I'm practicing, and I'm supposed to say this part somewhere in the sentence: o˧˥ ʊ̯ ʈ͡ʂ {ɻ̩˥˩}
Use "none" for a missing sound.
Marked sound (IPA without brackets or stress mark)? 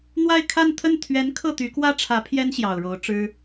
ɻ̩˥